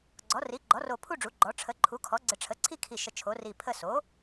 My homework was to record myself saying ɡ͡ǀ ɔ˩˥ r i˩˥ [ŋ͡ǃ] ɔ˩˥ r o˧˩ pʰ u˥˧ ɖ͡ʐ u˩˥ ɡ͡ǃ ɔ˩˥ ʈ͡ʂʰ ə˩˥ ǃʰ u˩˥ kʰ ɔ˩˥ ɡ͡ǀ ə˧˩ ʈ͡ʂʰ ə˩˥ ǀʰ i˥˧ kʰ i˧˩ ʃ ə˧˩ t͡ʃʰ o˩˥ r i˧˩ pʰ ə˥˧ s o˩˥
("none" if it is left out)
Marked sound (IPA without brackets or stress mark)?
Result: ɡ͡ǃ